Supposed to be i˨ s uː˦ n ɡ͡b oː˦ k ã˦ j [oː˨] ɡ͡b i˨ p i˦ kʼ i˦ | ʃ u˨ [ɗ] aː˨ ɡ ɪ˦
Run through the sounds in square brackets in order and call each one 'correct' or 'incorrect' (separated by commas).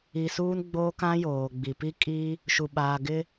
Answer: correct, incorrect